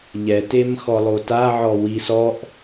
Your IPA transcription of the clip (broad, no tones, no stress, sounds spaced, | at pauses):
ʎ ɛ t e m x ɔ lˠ o t a ʕ ɔ w i s ɔ ʔ